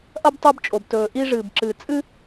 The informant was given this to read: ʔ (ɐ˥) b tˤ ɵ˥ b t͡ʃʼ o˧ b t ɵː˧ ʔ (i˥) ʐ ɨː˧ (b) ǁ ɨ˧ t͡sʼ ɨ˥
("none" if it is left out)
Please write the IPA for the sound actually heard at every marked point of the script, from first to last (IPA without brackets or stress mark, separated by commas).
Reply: ɐ˥, i˥, b